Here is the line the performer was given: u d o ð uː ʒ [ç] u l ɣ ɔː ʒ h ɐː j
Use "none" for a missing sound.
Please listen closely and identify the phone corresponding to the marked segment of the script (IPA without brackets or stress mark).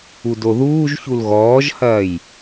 ç